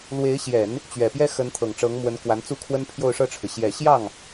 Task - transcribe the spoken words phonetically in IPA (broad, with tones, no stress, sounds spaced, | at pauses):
l w e˧˥ ɪ̯ ɕ j ɛ˨˩˦ n | t͡ɕ ɥ ɛ˨˩ p j ɛ˥ x ə˧˥ n t̪ʰ ɤ˨˩ ŋ ʈ͡ʂ ɤ˧˥ ŋ m w ə˧˥ n k w a˧˥ n t͡s u˥ kʰ w ə˥ n pʰ j o˥˧ ʊ̯ ʂ ɤ˥˩ ʈ͡ʂʰ ɻ̩˩ ɕ j ɛ˨˩ ɕ j ɑ˥˩ ŋ